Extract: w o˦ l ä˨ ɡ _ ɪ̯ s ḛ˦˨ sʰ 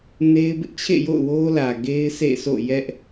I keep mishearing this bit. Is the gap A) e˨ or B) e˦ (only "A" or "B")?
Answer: B